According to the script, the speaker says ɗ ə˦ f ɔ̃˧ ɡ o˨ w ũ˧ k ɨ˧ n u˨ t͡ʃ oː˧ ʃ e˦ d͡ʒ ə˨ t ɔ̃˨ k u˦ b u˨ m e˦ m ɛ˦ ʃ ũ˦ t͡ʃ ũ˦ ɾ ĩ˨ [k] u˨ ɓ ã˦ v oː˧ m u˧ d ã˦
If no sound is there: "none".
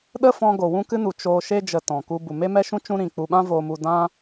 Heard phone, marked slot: k͡p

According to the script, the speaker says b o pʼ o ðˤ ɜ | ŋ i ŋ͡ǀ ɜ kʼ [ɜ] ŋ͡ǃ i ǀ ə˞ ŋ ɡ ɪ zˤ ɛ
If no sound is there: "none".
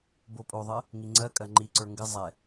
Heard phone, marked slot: ɜ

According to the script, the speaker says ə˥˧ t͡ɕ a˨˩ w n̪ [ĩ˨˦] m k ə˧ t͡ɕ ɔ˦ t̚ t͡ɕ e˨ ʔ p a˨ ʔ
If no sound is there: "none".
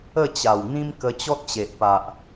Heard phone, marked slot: ĩ˦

